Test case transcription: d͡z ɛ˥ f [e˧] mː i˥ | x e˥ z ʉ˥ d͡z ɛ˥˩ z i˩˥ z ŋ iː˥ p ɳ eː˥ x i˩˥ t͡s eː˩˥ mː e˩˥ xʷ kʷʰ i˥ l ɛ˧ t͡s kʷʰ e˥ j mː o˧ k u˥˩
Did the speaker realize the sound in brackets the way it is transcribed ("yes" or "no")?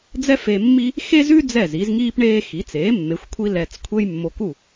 yes